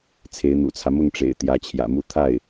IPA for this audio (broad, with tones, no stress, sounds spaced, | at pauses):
t͡sʰ e˧˥ ɪ̯ n̪ ṵ˨˩ t͡sʰ ä˦ m ʊ˥˩ ŋ ʈ͡ʂ ḛ˨˩ ɪ̯ t̪ j ä˧˥ t͡ɕʰ j ä̰˨˩ m u˥˧ t̪ʰ a˥˩ ɪ̯